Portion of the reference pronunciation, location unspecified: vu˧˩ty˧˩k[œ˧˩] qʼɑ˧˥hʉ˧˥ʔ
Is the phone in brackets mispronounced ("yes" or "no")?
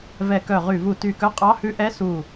yes